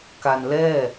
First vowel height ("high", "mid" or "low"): low